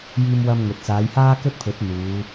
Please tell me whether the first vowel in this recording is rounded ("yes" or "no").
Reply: no